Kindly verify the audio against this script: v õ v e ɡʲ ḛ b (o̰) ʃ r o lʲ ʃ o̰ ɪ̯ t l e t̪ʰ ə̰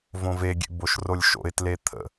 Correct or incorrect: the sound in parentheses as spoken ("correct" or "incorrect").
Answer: incorrect